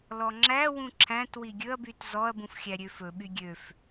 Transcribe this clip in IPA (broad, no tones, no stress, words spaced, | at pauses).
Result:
lɔŋ͡ǁæwũ ǁʰæ̃t wiɡʲɵɐ̯byt zɔɐ̯bũf xʲæɾʲøfɵɓy ɡʲøf